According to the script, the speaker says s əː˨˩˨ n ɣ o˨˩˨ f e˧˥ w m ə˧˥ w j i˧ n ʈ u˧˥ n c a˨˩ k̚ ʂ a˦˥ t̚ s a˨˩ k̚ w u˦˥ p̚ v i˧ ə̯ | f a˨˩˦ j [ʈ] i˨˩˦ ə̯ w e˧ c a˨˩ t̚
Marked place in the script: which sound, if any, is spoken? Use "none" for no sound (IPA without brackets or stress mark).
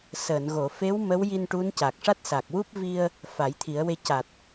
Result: t̪ʰ